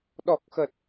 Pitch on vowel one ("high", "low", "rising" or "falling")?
low